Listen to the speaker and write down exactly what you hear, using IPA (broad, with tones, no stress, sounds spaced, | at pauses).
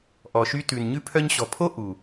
ʔ ɔ˨ ʃ y˧ t ʉ˨ n ɲ ʉ˧ pʰ œ˧ ɲ ɕ ɔ̤˨ pʰ o˦ ʔ u˨